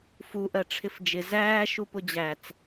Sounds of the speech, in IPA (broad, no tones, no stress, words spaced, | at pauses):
fu ʔɜʈ͡ʂʰɪfd͡ʒɪ zæː ʃupʊd͡ʑæt͡s